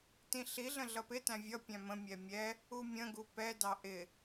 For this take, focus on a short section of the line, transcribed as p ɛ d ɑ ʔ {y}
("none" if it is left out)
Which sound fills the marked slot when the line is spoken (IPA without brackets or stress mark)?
ɪ